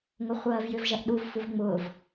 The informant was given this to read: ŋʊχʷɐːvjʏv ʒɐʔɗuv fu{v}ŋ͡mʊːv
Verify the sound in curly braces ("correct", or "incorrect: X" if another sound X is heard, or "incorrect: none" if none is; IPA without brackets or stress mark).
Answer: correct